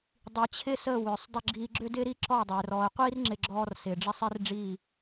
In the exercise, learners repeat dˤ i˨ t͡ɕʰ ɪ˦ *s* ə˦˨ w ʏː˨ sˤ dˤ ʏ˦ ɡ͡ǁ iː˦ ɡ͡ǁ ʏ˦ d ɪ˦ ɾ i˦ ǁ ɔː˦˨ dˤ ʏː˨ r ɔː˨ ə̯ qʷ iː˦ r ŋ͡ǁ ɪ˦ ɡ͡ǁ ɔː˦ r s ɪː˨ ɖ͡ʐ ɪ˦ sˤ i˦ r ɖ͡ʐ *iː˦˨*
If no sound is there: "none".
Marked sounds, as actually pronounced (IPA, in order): s, iː˦˨

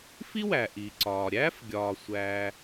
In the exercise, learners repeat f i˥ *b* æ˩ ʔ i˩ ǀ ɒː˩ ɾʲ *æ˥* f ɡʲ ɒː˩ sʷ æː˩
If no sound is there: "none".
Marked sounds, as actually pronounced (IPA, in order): w, æ˥

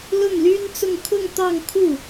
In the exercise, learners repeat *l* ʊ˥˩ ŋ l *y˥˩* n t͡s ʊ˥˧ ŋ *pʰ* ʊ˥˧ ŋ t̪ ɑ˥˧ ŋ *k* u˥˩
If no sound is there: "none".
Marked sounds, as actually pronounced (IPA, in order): l, y˥, kʰ, kʰ

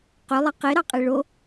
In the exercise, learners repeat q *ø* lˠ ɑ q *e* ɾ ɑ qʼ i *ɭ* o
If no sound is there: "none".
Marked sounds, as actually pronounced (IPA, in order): ø, e, ɭ

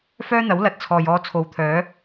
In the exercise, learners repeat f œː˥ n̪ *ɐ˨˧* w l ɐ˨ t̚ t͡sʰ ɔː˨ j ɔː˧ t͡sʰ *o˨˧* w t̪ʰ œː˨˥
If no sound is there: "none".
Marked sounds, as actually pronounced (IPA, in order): ɐ˨˥, o˨˧

